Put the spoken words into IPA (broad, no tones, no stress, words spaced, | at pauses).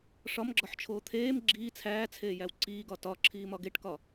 ʂɒmɡ͡ǁɒħt͡ʃʰoː t̪ʰeːm ɡ͡ǁiː t͡sʰæːt͡sʰeːjæw ǀiːɡɒ tɒǁʰiːmɒ ɡeʈkɒ